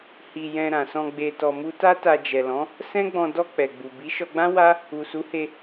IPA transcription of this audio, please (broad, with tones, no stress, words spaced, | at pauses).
hi˧jɛ̃˧ ɾã˨sɔ̃˧ ɡ͡be˧tɔ˧mu˦ ta˦ta˧d͡ʒɛ˨lɔ̃˨˦ | sɛ̃˦ɡ͡bɔ̃˧ dɔ˧ k͡pɛ˨ɡ͡bu˨ bi˨˦ ʃɔ˧ɡ͡bã˦ wa˦ | u˨su˨˦he˧